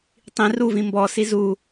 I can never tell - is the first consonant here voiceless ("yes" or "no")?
yes